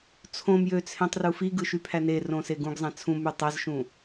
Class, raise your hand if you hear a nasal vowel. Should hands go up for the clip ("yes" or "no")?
yes